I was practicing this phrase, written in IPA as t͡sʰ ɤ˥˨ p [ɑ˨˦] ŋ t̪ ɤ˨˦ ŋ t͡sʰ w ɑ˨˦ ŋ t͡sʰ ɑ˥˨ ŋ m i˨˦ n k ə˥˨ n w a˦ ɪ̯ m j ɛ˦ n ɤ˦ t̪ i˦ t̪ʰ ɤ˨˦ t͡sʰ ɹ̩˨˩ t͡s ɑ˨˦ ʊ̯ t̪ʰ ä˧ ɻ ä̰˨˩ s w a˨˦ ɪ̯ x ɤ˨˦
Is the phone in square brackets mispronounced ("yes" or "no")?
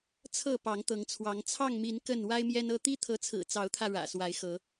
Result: no